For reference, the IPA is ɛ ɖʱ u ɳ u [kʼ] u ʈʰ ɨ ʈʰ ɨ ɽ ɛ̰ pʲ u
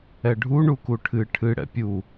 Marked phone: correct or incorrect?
incorrect